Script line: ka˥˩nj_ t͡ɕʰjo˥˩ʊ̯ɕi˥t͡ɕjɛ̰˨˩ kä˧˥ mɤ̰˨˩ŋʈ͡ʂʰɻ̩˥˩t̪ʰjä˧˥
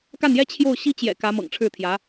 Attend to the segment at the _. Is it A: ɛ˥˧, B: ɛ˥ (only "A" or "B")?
B